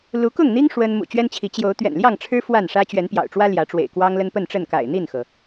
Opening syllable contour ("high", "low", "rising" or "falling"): rising